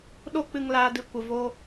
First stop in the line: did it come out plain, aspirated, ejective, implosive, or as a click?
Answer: implosive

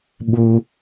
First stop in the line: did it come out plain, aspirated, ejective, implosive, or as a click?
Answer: implosive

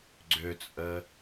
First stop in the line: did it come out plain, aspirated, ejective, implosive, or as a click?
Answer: click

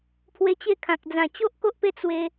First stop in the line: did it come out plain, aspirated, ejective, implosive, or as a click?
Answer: aspirated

